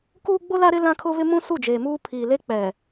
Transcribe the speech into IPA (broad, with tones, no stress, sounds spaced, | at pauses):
k uː˦ ɡ͡b o˦ l a˦ ɾ ɪ˦ l ã˦ kʰ ʊ˦ β ɪ˦ m ũ˦ s u˦˨ d͡ʒ eː˨ m uː˦ pʰ iː˨ l e˦ k͡p ɛ˨